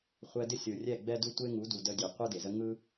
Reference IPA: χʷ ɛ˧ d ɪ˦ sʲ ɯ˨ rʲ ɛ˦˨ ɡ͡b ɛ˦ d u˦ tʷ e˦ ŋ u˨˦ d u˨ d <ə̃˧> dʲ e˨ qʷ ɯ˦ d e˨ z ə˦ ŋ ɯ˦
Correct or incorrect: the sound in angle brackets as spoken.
incorrect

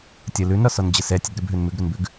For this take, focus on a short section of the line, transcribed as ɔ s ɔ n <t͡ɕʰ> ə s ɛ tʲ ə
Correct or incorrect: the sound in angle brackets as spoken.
incorrect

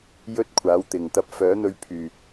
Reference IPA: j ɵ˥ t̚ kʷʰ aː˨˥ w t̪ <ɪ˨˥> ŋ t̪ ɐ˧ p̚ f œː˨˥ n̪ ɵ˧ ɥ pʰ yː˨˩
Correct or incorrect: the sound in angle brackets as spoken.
incorrect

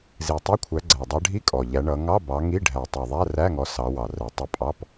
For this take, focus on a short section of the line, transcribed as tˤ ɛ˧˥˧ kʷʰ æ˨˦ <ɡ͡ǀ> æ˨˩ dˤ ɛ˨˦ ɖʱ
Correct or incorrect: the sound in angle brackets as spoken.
correct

